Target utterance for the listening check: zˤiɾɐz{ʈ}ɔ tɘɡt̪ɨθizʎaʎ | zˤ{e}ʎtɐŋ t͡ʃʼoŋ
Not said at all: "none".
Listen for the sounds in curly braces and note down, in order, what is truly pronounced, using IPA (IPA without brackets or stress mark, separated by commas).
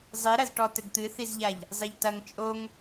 ʈ, e